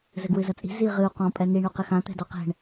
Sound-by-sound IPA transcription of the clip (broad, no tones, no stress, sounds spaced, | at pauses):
z ɘ ɡ w ɨ z ɐ t͡sʼ i̤ z i ʁ ɨ u̯ q ɔ̃ pʼ ɛ n i ɳ o q ɘ x ã t̪ ɛ̤ d ɔ q ɛ̤ ɳ